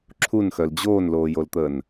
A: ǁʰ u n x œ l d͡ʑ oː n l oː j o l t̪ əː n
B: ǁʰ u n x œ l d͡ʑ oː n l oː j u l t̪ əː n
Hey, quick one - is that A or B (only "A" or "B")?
A